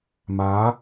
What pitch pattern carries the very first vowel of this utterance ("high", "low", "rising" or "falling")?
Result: rising